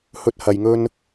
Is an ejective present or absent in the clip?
absent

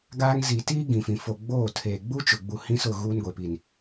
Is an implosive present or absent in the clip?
absent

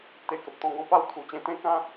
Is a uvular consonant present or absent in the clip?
absent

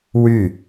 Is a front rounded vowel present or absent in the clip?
present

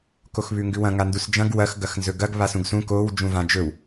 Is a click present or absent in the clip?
absent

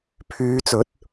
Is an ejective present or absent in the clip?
absent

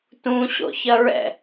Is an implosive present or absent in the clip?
absent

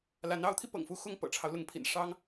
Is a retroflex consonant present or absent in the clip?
present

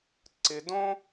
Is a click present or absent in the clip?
present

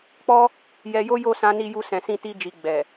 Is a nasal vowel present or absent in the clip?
present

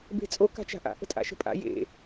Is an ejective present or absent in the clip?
present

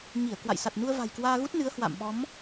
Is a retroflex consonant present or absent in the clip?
absent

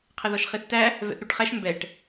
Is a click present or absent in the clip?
absent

